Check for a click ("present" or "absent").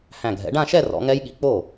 absent